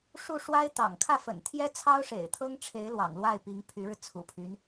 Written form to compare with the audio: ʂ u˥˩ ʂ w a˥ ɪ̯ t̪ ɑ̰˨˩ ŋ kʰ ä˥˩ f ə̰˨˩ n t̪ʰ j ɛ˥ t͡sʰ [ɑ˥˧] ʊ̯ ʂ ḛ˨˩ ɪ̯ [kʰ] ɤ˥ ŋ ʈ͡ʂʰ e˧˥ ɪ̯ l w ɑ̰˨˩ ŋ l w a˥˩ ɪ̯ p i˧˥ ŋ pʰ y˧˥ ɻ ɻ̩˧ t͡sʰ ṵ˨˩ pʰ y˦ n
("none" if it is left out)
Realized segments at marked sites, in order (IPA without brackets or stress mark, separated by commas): ɑ˥, t̪ʰ